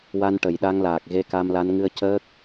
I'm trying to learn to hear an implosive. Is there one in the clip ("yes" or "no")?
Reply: yes